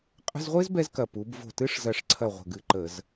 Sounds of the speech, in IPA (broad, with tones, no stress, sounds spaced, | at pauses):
qʼ ə̤˧˥˧ z ʁʷ ɪː˥ z b ɛ˥ z k ɐ˧˩ p u˩˧ b v o̤˧˩ t ɨ˧˥˧ ʂ z ɐ˧˩ ʂ ǀʰ ɐ˧˩ ʁʷ ə̤˧˩ ɡ ɨ˧˩ ǃ ə˧˩˧ z